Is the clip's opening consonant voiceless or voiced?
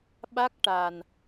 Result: voiced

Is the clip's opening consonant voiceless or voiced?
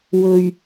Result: voiced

